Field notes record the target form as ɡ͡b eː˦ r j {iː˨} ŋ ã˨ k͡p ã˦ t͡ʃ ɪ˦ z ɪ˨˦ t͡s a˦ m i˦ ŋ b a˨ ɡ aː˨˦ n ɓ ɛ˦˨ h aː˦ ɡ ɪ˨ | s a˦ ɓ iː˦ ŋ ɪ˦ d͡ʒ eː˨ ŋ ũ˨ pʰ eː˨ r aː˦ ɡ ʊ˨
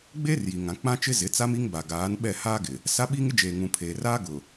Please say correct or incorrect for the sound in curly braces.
incorrect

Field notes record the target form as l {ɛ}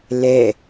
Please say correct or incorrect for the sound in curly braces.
correct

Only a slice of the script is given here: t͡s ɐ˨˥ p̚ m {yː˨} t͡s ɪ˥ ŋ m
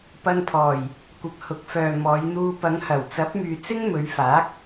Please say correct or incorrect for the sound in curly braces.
correct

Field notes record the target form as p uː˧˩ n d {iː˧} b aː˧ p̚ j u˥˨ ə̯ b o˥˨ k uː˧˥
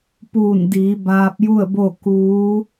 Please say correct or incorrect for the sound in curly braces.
incorrect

